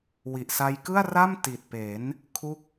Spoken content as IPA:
w i˨˩ ʔ s a˧ j k ɯ˥˩ a̯ r a˥˩ m t i˨˩ t̚ p e˩˦ n | kʰ u˥˩ k̚

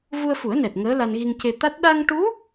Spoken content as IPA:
v u˧ ə̯ f u˨˩˦ ə̯ n ɛ˨˩ t̚ ŋ əː˧˥ l a˧ n ɣ i˧ ŋ c e˧ t̪ a˦˥ t̚ ɗ a˧ ŋ ʈ u˧˥

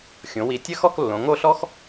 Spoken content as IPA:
xʲ õ˩˧ w i˨˩ tʲ ɘ˥˧ x ɔ˥˧ k lː õ˩˧ ŋ o˥˧ ɬ ɔ˥ x

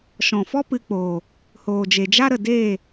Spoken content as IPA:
ʃ ɔ̃˨ f ɔ˦ p ɨ˧ k͡p oː˨ | h oː˨ d͡ʒ e˨ d͡ʒ a˦ ɾ ə˨ d eː˦˨

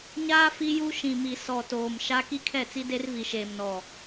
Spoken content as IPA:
ɲ aː˦ f i˦ j u˦ ʃ ĩ˨ m i˨ s ɔ˨ t oː˨ m ʃ a˦ k i˦ kʰ ɛ˦˨ t͡s i˦ d e˦ r v i˨ ʃ eː˨ m n ɔ˨

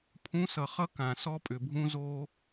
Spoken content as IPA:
pʰ ũ˨˦ s ʌ˨ χ ʌ˦ k ã˨ s ɔ˦ pʼ ʏ˨ bʱ ũ˦ z oː˦

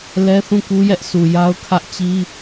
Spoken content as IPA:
l ɛ˦ θ ũ˦˨ k u˦ j ɛ˦ ʔ sʰ u˨ j a˦ ʊ̯ kʰ ä˦ ʔ t͡ɕ i˦

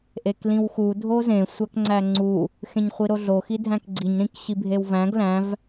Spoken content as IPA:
ʔ e k l ĩ w x u dʱ o z ẽ sʷ æ k ŋ͡ǀ æ ŋ͡ǀ u | x ẽ ɲ χʷ i ɾ o ɮ o x i dʱ æ̃ k ɡ͡ǀ i ɲ ɾ ĩ k ɕ i bʱ e w v æ̃ ɡ l æ̃ v

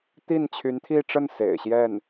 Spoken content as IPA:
t̪ i˥˩ n t͡ɕʰ y˧˥ n t̪ʰ i˥˧ ʈ͡ʂ ə˥˩ n s ḛ˨˩ ɪ̯ ɕ j ɛ˥˩ n

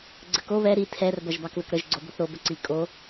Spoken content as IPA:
ɡ͡ǀ ə k o β ɛ ɾ i tʰ ɛ r b ɐ ʒ b ɑ k ð ə k ɾ ə ʒ ɡ͡ǀ o b o θ ɾ o b ə ǀ i kʼ o

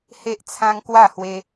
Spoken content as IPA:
h e˦ ʔ t͡sʰ ã˦ ŋ k w a˥˧ h w e˦

